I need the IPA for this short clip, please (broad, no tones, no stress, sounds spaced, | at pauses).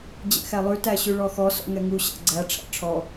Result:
d͡ʑ ɛ̰ x æ lˠ ʉ t æ ɕ ʉ ɭ ɔ x ɔ s ɔ̰ ŋ ɛ ŋ u ɕ æ̰ ɡ͡ǀ æ ʈ͡ʂʰ æ̰ ʈ͡ʂʰ ɔ